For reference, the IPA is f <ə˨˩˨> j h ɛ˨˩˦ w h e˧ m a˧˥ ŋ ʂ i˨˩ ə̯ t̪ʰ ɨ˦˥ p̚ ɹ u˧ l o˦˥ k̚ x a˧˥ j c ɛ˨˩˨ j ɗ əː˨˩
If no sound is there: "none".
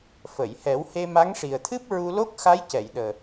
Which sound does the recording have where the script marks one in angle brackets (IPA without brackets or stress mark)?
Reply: ə˨˩˨